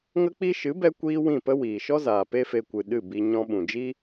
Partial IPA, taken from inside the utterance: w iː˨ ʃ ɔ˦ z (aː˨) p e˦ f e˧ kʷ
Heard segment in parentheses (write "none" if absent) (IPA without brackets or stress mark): aː˨